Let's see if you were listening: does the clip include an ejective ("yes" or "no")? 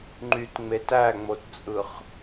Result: yes